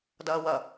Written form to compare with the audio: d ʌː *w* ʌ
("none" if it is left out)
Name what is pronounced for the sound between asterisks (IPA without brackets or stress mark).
w